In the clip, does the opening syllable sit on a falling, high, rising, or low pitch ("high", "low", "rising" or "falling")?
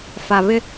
low